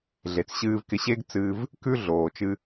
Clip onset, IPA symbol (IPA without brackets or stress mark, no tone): ɮ